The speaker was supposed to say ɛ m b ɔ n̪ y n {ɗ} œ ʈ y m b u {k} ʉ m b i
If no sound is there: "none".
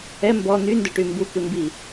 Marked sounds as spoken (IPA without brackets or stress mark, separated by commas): d, k